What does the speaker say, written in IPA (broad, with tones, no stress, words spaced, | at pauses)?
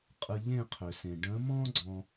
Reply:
qʼɯ˧ ʎẽ˦˨qʰø˨sẽ˨ ɖə̃˨˦mɔ̃˦ ɡ͡ǀɔ̃˦